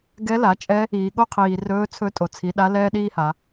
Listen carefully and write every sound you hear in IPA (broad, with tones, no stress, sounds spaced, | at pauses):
ɡ ɛ˧˥ l a˩˧ t͡ʃʼ ɛ˧˥ | iː˩ ɠ o˥ qʰ iː˩ r ɵː˧˥ t͡sʰ ɵ˧˥ tʼ o˩ t͡sʰ i˩˧ ɗ a˧˥ l ɛː˥ ɗ iː˥ h a˩˧